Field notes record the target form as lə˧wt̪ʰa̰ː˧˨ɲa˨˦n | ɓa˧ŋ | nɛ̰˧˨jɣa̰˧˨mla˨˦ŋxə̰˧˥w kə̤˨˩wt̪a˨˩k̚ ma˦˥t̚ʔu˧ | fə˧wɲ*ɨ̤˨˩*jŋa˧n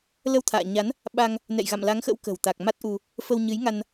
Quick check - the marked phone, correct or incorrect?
incorrect